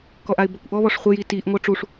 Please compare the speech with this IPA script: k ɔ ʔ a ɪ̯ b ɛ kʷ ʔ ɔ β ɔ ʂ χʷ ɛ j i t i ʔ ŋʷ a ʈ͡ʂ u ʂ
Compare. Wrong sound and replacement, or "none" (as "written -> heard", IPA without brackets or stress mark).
none